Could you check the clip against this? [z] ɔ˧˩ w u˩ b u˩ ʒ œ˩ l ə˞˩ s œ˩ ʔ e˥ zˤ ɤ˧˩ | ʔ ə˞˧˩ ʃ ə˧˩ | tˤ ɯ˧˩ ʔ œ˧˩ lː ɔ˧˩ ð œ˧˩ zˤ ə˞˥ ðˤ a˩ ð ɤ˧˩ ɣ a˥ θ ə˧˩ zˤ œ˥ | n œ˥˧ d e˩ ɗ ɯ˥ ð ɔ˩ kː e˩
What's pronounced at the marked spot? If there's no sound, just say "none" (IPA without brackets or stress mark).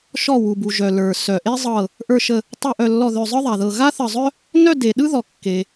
ʃ